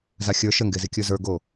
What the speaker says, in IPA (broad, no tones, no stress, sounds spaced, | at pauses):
z a xʲ ə˞ ʃ ə ŋ ɡ e z i kʲ ə˞ z ə˞ ɡ o